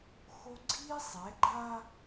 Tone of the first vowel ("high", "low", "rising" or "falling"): high